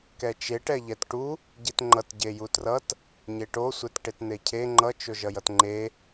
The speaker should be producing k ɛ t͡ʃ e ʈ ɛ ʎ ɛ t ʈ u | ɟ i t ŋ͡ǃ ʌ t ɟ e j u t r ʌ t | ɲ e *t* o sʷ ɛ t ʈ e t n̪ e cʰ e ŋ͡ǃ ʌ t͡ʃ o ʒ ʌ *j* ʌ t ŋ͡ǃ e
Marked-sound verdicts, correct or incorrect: incorrect: ʈ, correct

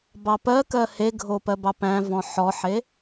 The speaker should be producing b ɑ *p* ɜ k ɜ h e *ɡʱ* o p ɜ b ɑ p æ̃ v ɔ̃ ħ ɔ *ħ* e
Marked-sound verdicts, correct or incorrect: correct, correct, correct

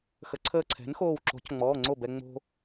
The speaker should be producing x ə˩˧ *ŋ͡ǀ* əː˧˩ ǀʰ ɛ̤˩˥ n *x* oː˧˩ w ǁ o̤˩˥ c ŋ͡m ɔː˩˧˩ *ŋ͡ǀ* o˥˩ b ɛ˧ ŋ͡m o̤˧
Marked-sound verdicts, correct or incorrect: incorrect: ǀʰ, correct, correct

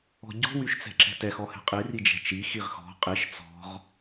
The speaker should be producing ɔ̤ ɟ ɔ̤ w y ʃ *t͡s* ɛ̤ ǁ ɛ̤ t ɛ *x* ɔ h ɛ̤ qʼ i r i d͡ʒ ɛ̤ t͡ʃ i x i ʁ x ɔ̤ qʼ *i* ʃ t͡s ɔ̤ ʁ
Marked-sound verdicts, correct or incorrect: correct, correct, correct

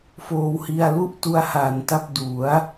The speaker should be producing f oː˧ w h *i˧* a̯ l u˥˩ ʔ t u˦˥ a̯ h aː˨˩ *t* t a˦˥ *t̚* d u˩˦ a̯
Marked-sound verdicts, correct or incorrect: correct, incorrect: n, incorrect: p̚

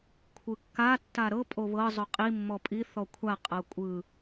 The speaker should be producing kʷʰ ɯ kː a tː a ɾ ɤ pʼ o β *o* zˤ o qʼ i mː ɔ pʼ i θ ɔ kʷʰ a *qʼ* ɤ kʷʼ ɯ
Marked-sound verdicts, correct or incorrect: incorrect: ɤ, correct

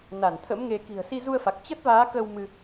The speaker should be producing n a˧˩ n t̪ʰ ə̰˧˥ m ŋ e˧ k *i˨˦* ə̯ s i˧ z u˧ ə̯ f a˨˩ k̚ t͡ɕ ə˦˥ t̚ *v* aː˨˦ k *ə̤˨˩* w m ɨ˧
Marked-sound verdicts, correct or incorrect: incorrect: i̤˨˩, correct, incorrect: ə˧

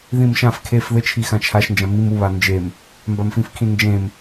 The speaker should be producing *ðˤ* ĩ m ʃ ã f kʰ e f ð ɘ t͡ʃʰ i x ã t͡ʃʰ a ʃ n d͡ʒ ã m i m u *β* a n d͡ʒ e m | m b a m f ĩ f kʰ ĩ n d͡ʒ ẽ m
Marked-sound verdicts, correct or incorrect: incorrect: ð, correct

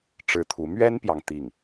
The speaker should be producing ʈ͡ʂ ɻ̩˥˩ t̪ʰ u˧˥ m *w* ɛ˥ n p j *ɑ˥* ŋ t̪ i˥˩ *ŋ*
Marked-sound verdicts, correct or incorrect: incorrect: ɥ, incorrect: ɑ˨, correct

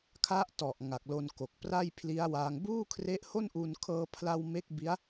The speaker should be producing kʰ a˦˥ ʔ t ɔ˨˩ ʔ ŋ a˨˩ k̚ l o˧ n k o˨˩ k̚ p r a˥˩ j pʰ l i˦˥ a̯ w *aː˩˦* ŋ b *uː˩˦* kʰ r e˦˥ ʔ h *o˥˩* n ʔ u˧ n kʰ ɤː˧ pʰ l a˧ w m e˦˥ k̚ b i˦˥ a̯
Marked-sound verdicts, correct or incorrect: incorrect: aː˧, incorrect: uː˥˩, correct

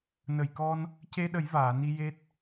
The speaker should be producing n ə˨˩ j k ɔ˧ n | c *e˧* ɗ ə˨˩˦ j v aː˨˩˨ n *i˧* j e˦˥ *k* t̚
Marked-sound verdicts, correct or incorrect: correct, correct, incorrect: none

